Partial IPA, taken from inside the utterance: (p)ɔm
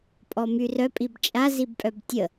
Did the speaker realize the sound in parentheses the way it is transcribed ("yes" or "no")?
no